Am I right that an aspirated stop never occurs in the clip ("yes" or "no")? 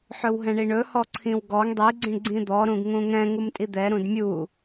no